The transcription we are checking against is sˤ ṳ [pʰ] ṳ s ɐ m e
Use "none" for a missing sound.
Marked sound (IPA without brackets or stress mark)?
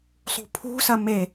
pʰ